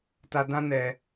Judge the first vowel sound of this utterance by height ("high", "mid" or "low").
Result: low